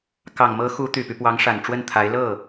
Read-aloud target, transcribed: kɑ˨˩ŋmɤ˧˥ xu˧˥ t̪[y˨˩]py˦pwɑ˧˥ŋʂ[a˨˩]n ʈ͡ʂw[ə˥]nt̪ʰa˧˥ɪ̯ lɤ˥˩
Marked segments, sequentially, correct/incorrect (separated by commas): correct, correct, incorrect